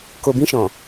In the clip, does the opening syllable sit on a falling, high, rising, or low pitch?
low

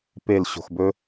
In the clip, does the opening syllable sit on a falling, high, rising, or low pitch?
falling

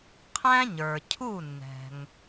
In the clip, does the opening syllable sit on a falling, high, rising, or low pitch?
high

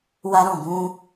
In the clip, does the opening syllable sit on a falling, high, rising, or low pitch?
high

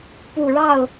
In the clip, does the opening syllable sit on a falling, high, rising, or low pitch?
low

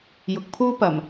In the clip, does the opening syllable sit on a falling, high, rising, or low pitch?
low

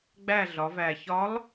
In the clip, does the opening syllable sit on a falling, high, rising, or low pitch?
falling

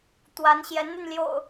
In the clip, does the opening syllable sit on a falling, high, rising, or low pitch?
rising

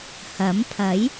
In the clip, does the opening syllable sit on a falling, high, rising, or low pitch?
rising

